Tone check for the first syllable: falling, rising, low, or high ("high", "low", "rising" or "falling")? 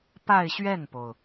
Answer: falling